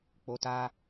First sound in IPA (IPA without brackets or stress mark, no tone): k͡p